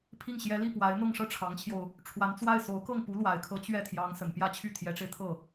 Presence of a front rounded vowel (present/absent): present